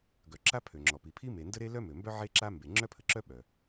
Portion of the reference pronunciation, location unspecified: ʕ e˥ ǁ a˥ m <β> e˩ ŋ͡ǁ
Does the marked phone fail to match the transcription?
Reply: yes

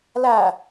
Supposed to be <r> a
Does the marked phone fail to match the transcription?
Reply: yes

